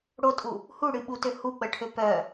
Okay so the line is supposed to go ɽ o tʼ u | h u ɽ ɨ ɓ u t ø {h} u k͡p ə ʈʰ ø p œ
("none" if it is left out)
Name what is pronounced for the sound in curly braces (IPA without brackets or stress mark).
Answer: h